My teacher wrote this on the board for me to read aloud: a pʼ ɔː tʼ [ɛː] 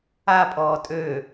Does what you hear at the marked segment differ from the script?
yes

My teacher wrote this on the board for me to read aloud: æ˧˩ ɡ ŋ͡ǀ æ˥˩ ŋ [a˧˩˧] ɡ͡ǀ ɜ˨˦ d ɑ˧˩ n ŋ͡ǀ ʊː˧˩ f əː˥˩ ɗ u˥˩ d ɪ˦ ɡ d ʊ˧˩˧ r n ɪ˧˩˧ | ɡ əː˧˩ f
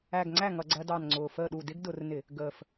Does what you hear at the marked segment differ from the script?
yes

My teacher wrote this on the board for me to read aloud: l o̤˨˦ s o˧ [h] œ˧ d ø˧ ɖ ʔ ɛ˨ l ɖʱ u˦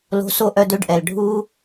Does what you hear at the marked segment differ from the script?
yes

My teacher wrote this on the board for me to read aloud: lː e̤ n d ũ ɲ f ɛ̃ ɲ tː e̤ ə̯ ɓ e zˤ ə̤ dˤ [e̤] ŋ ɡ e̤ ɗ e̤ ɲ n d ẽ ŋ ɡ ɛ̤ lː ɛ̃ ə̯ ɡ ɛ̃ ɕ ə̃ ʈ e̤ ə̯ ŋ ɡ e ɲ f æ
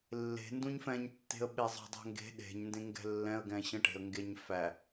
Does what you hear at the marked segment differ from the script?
yes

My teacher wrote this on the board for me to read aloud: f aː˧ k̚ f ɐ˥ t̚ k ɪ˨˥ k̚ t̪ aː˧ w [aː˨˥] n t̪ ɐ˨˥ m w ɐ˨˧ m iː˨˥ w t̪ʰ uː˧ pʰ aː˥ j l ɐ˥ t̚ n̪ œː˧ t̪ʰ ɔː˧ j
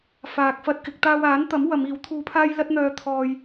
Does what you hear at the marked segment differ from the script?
no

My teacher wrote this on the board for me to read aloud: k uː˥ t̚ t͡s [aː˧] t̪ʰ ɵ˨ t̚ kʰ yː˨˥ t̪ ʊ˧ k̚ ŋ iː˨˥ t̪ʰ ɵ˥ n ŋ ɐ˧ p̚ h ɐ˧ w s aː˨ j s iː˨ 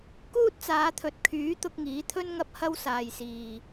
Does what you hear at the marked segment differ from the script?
yes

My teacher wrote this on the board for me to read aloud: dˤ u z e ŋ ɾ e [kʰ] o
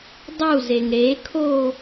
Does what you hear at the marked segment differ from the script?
no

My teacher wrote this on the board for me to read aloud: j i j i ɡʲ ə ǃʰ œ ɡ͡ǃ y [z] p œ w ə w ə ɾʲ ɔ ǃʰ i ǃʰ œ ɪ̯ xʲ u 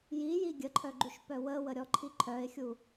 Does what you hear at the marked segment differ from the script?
yes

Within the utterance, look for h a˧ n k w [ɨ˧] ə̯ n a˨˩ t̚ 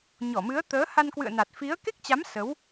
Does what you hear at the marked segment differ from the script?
yes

